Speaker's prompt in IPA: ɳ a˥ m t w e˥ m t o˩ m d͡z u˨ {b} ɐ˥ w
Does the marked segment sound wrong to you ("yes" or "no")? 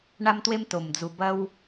no